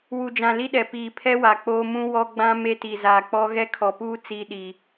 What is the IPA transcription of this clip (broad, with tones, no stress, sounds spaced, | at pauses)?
w u˨ d͡ʒ ã˨ l i˦ ɗ ɛ˨ p iː˨ pʰ ɛ˦ w a˨ k͡p oː˦ m ũ˦ w ɔ˦ ɡ͡b ã˦ m e˦ t i˨ z aː˨ k͡p ɔ˦ ɣ ɛ˦ kʰ ɔ˨ p uː˦ t͡s iː˦ ɗ iː˨